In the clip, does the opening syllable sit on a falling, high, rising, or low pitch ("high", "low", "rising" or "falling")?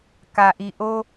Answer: low